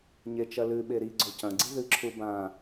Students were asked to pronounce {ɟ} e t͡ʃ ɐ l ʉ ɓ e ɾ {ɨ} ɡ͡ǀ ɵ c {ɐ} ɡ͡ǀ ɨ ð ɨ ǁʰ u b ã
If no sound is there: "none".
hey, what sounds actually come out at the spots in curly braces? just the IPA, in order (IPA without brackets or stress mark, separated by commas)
ɲ, i, ɐ̃